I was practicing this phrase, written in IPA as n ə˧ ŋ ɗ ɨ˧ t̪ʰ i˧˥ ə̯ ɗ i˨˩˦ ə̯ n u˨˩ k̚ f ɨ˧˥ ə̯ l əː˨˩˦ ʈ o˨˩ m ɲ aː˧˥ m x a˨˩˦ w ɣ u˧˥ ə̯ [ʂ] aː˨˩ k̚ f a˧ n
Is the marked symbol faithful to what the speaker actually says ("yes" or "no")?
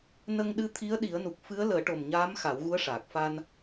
yes